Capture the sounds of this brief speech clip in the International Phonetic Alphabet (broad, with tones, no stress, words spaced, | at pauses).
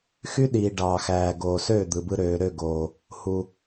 xy˦ɗiː˨ ɖɑː˨xæː˨ɡoː˨søː˦˨ d̪ɯ˨bɯ˧ɾøː˨ ɾø˦˨ɡoː˨ | hu˨